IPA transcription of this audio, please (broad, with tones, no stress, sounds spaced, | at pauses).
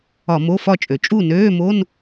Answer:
ɒ˧˩˧ m o˧˥˧ f ɒ˥˨ t͡ʃʼ ø˩ t͡ʃʼ u˥˨ n øː˧˥˧ m o˧˥˧ n